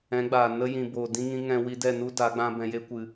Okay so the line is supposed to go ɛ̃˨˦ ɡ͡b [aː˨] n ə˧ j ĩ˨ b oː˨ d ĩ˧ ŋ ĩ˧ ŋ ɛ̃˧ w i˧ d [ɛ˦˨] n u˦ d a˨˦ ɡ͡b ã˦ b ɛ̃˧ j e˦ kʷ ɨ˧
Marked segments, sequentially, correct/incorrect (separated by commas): correct, correct